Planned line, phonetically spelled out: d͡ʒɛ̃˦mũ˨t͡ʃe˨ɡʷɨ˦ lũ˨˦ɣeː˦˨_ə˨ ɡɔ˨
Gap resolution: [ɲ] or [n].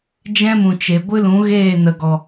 n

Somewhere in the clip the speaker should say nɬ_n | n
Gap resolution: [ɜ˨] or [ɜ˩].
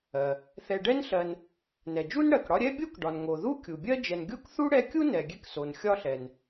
ɜ˨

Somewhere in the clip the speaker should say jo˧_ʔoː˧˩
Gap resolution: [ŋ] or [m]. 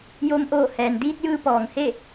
m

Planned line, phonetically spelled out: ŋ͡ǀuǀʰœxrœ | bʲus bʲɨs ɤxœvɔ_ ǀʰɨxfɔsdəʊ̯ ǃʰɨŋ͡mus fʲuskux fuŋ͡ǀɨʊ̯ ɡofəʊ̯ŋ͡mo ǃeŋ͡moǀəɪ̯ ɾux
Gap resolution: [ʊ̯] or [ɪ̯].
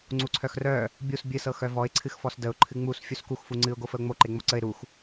ɪ̯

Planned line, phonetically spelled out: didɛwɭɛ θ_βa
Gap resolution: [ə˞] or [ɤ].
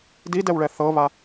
ɤ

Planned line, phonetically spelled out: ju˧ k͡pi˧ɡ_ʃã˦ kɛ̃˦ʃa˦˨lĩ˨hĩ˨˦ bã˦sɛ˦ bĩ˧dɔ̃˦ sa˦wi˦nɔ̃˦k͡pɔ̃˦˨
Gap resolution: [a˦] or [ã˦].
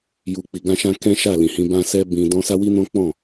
ã˦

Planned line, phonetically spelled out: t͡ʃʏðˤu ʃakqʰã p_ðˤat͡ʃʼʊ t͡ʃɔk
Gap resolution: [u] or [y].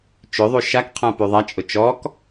y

